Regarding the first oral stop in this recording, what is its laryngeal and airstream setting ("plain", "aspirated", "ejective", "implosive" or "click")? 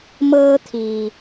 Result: aspirated